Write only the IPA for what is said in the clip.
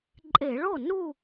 ǃʼ e˧˩˧ ɭ o˥˩ n u˥˧

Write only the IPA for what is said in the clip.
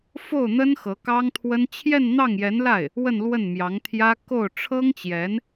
f o˥˩ ʊ̯ n̪ ə˥ n x ɤ˧˥ k ɑ˥ ŋ t̪ʰ w ə˥ n t͡ɕʰ j ɛ˥˧ n n̪ ɑ˥˩ ŋ j ɛ˧˥ n l a˥˩ ɪ̯ | w ə˥˧ n l w ə˥˩ n m j ɑ˧˥ ŋ t̪ʰ j ä˥ k o˥˩ ʊ̯ ʈ͡ʂʰ ɤ˥ ŋ t͡ɕ j ɛ˧˥ n

